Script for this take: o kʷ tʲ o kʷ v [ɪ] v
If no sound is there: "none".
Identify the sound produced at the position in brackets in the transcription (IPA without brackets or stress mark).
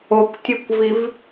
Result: i